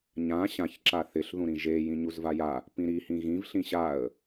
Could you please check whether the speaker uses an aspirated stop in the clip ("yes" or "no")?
no